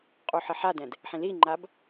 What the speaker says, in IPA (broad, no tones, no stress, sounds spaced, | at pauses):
qʼ u ħ ɪ ħ a d ɛ̃ d | ħ ĩ l i ŋ͡ǃ a b